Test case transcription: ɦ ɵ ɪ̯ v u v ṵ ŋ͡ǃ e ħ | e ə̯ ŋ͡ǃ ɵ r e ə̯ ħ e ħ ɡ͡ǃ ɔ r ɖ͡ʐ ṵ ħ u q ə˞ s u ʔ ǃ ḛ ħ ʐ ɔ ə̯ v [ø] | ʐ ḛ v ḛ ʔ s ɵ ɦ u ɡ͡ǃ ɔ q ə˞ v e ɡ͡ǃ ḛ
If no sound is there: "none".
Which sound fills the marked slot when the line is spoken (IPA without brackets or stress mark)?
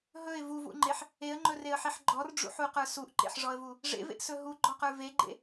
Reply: u